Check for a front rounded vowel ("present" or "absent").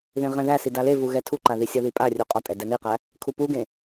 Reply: absent